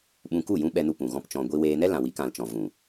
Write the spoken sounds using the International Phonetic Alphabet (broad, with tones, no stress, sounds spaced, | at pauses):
ɓ ũ˧ k u˦˨ j ũ˦ ɓ ɛ˧ n u˧ p ũ˨ ɣ ɔ̃˦ p t͡ʃ ɔ̃˧ ɡʷ i˧ w eː˧ n ɛ˦ l ã˨ w i˨˦ k ã˨ l t͡ʃ ɔ̃˨ v ũ˨